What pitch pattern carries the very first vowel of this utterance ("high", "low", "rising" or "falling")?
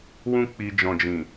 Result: high